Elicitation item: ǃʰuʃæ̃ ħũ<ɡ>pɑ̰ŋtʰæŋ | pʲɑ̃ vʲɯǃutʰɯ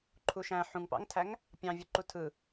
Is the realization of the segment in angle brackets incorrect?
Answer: yes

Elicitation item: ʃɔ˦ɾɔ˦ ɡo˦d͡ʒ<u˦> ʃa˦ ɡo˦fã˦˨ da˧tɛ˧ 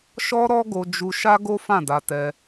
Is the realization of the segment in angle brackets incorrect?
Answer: no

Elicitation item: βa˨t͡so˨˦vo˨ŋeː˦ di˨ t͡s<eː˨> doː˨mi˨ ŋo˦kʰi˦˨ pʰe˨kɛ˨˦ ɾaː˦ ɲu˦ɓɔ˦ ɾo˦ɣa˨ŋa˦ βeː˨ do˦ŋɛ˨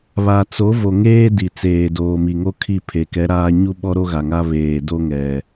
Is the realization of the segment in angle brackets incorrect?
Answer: no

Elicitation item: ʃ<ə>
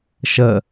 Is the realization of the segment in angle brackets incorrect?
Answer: no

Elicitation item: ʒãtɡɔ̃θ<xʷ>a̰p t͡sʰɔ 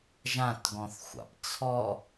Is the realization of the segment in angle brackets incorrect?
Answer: no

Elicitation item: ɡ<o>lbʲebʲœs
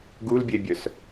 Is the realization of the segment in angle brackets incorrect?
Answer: yes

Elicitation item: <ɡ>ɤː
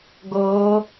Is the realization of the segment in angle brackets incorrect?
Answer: no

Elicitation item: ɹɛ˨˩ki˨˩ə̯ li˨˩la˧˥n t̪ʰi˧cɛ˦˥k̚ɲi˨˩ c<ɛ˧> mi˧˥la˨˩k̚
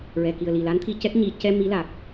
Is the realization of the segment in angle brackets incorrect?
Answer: no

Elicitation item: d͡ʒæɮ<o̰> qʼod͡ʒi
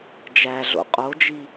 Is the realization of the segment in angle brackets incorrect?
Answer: no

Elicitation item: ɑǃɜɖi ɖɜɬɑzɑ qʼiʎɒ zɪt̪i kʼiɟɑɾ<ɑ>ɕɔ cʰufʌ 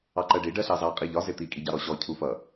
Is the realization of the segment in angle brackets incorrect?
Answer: yes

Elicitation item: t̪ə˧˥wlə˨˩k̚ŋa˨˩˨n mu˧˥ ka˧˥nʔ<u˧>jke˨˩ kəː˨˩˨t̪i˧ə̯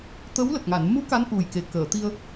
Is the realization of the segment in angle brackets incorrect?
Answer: yes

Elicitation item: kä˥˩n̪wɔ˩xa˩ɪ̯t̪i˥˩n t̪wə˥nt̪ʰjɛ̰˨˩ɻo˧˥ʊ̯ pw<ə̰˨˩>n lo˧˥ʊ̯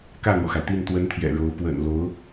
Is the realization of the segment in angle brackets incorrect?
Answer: no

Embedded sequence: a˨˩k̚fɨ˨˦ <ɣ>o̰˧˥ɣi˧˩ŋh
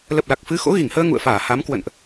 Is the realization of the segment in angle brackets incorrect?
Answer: yes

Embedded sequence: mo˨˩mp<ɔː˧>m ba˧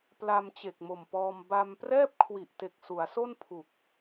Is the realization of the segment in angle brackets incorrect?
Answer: no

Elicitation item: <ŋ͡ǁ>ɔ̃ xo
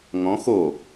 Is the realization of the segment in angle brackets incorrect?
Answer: yes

